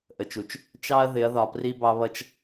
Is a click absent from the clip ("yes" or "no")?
yes